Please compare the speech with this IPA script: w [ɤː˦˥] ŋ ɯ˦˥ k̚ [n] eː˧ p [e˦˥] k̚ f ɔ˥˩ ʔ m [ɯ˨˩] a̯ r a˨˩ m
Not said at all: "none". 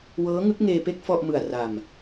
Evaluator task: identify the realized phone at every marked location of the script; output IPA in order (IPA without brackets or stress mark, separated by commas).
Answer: ɤː˦˥, ŋ, e˥˩, ɯ˨˩